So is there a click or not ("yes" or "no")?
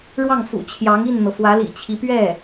no